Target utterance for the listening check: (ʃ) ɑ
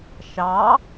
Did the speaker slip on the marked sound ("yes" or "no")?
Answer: no